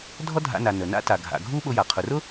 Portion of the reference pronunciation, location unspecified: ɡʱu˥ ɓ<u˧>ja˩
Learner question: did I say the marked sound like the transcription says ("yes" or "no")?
no